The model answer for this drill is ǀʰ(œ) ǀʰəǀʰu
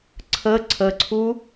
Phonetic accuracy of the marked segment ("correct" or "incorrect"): incorrect